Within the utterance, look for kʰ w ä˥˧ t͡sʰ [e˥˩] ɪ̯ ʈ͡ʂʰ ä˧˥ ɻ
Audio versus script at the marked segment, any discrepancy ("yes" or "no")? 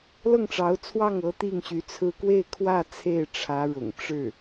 no